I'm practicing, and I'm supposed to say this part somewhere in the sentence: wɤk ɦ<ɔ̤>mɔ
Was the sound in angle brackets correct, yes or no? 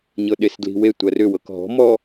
yes